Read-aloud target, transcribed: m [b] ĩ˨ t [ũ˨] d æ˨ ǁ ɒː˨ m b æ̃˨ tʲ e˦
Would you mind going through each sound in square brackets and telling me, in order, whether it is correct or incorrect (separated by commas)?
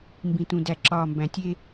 correct, correct